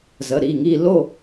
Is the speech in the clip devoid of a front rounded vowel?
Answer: yes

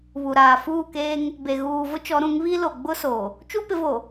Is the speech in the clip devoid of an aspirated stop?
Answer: yes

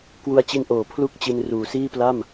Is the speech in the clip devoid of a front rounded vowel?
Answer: yes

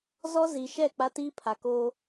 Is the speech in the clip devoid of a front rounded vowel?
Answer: yes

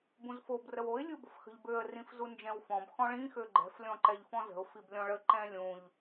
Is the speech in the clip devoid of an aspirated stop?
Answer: yes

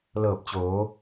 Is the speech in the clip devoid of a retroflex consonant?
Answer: yes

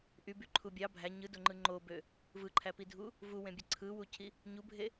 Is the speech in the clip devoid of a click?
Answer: no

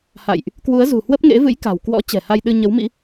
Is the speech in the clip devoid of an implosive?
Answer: no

